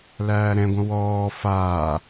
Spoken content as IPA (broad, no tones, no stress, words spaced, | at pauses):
læːɾɛ̃ɡʷə̃ wɔː faː